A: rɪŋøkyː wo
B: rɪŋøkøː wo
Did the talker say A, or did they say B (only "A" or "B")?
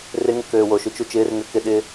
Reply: B